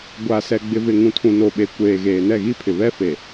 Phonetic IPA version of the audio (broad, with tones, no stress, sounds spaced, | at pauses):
ɡʷ a˨ s ɛ˨ ɡ͡b ɪ˨ v ɪ˨ ŋ ũ˨ tʰ ũ˨ n o˨ ɓ e˨ kʷ eː˨ ɣ eː˨ n ɛ˦˨ ɣ i˦ pʰ ɪ˨ β ɛ˦ f e˨